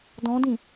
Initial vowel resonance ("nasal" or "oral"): nasal